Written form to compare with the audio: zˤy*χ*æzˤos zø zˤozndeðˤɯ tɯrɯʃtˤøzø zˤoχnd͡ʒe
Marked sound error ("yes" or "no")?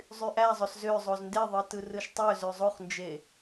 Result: yes